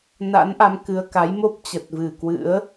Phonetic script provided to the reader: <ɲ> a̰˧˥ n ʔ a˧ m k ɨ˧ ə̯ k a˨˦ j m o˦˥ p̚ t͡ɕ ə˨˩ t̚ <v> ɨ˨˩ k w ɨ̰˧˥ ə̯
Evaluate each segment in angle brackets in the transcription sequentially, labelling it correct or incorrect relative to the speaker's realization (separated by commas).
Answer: incorrect, correct